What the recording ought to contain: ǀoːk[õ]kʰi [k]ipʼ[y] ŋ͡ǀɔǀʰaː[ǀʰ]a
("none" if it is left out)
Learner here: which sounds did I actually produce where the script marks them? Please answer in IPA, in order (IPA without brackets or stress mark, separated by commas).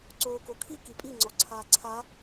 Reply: o, k, i, ǀʰ